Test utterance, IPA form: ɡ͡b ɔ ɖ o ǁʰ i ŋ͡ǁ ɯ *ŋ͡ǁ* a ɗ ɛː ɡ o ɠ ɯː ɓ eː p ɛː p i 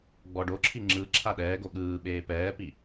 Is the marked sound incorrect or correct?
incorrect